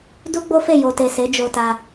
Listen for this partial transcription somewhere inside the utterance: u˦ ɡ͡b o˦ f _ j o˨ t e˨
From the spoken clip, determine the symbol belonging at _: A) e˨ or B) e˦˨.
B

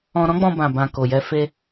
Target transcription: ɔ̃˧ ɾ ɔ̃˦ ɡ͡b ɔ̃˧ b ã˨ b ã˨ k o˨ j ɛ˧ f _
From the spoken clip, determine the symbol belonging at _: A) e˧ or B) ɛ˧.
A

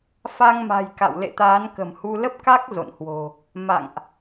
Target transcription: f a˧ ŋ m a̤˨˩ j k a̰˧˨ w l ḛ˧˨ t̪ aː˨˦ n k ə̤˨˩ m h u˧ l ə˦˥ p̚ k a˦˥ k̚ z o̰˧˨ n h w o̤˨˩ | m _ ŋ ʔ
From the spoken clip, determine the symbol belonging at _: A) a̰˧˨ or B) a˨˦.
A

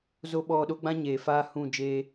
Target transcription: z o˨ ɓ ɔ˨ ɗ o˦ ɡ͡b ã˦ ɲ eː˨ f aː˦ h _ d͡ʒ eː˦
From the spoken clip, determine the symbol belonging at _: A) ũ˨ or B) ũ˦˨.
B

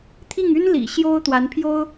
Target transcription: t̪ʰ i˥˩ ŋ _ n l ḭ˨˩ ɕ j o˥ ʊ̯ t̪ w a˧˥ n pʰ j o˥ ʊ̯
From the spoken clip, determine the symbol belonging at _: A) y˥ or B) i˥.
A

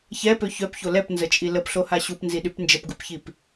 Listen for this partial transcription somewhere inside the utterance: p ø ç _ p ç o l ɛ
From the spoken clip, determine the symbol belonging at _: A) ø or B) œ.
B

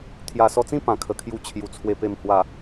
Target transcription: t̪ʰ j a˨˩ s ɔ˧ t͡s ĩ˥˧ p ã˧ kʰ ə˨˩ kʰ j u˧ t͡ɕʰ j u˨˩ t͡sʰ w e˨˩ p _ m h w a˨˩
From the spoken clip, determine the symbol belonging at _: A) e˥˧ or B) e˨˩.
B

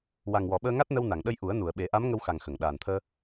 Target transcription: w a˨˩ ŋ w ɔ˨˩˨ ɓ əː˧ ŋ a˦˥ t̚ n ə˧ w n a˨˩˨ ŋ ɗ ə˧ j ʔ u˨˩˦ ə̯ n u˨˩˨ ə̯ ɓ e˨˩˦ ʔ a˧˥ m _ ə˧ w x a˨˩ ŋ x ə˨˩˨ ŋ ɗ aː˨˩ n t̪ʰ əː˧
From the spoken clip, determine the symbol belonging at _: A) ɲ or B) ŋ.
B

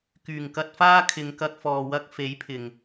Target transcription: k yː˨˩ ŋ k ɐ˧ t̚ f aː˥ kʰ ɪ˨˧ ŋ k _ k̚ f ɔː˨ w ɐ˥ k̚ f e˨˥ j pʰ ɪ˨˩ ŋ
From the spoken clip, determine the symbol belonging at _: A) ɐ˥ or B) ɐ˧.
B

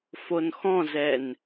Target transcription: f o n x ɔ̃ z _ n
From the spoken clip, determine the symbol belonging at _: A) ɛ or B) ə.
A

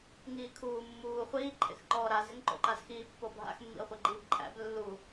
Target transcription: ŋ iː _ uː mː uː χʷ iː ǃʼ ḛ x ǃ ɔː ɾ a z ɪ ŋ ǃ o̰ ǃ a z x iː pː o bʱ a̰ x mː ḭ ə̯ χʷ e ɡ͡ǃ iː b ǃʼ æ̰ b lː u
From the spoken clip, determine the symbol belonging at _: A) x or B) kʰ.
B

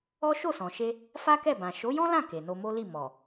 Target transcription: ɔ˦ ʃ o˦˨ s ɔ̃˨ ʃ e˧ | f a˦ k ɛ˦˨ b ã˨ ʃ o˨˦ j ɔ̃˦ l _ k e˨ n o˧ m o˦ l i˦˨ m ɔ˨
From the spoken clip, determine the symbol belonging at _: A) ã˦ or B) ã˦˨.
B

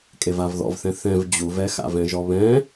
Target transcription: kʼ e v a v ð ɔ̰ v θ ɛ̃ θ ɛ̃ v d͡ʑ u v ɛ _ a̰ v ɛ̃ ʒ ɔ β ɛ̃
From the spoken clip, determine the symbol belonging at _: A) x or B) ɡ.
A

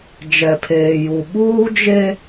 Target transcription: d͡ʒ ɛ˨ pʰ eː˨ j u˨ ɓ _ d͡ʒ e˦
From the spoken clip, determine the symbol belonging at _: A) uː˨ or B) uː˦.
B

